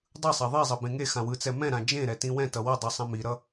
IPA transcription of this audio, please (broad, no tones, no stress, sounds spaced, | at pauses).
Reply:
dˤ ɯ sˤ a ðˤ i zˤ ʌ b ẽ ŋ e x ã w ɯ t͡s ɛ m ɛ̃ ɾ ã d͡ʒ ẽ ɾ ɛ t ĩ w ɛ̃ t ʌ w ʌ dˤ i sˤ ã m i ɾ ʌ